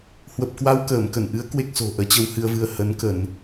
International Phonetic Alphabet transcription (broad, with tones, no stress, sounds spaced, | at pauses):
h w ə˨˩ p̚ k w a˧ w k əː˧˩ m k ə˧˩ n ʔ ɨ˨˦ ə̯ k w e˦˥ k̚ s o̤˨˩ ʔ əː˨˦ t͡ɕ ə˧ w h ɨ˧ ə̯ v ɨ˧ ə̯ h ə˨˦ n k ə˧˩˨ n